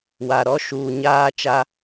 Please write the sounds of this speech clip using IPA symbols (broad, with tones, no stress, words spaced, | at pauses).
wa˨ɾɔ˦ ʃuː˨ɲaː˦ t͡ʃa˦